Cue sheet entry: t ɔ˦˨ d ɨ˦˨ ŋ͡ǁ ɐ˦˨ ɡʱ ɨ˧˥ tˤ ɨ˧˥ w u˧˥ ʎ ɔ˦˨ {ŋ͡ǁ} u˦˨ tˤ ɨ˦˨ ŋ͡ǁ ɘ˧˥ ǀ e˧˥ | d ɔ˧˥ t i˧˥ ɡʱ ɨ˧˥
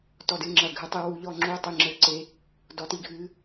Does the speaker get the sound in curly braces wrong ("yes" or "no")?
no